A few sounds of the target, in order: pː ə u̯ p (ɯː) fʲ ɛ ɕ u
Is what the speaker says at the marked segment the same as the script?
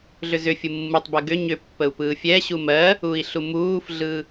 yes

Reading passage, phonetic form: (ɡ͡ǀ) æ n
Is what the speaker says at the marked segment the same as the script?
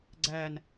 yes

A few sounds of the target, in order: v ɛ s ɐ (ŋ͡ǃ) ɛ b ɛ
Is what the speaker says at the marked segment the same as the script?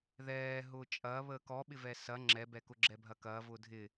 no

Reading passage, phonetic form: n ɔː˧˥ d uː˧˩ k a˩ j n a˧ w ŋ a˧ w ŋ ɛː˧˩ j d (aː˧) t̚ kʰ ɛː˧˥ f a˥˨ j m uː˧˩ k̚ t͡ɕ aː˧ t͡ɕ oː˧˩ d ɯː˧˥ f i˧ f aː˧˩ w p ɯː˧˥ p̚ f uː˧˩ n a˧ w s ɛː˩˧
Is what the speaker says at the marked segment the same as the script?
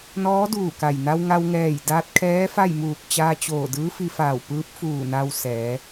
yes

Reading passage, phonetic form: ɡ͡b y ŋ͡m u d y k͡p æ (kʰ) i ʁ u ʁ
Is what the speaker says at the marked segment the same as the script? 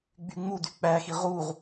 no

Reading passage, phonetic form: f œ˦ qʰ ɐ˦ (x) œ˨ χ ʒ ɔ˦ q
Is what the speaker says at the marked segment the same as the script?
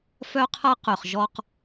no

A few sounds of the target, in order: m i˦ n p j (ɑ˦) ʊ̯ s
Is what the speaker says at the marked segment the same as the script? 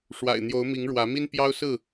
yes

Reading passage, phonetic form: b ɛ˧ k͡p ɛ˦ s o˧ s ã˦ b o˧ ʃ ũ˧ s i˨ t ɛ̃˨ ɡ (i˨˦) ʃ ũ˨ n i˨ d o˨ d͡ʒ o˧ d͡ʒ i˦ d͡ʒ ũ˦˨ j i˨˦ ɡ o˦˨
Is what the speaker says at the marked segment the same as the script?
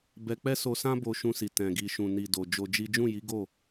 no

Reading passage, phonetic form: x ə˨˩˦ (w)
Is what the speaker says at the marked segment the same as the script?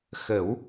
yes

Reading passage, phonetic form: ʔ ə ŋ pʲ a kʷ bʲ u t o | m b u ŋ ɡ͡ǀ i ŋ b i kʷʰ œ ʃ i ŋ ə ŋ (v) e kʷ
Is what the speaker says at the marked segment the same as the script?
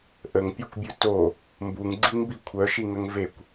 yes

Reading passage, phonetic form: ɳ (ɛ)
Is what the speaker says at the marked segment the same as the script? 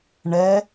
yes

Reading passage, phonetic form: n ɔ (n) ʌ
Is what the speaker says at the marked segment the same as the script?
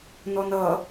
yes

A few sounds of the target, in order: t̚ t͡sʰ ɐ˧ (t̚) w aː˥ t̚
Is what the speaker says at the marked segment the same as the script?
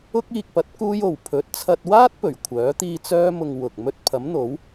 yes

